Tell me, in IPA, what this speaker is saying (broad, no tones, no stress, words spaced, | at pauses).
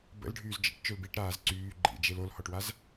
bə̰lɖʱyːz d͡ʒə̰ʈ t͡ʃølbiʈ ɾaːzǀyː ɡ͡ǃḭd͡ʒel olhɔʈwaz